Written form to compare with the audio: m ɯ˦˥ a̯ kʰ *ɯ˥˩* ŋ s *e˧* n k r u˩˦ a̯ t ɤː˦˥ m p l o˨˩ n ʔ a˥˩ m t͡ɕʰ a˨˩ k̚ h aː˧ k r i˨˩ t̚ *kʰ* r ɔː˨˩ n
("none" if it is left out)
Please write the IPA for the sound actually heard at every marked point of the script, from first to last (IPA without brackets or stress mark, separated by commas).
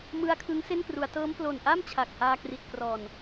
ɯ˦˥, e˥˩, k